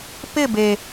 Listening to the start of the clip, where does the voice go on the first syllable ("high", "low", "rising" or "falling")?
falling